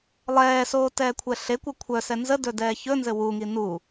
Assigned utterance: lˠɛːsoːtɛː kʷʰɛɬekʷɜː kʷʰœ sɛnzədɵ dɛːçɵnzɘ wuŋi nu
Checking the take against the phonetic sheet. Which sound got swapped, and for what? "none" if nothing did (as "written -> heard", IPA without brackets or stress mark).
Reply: ɜː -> ɜ